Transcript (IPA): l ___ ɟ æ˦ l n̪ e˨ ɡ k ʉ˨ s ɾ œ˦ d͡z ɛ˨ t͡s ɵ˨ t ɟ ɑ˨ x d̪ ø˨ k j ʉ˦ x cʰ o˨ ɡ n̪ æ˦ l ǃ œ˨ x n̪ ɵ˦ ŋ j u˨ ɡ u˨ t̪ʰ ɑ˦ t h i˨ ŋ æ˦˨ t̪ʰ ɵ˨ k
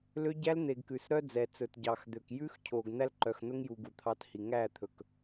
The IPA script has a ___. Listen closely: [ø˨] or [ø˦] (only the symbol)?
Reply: ø˦